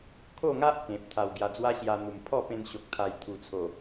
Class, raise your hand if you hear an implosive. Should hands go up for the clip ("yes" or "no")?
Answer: no